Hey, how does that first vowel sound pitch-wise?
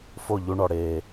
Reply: falling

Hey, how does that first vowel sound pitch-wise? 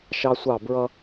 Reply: high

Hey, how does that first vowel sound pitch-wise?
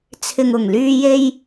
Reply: low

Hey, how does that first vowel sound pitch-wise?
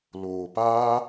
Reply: low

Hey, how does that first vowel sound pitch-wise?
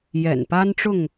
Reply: low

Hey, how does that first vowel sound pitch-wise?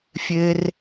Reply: high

